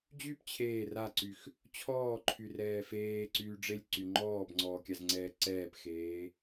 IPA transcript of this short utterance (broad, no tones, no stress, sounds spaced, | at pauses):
d͡ʑ y p t͡ɕʰ eː r a ǀ y x | t͡ɕʰ ɔː ǃʰ y r ɛː f eː ǀ yː ɖ͡ʐ e lʲ ǀ y ŋ͡ǃ ɔː b ŋ͡ǀ ɔː kʲ a z ŋ͡ǀ ɛː ǀ ɛː p x eː